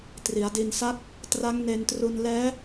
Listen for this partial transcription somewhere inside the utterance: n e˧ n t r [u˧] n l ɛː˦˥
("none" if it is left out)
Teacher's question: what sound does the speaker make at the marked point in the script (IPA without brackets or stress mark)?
u˧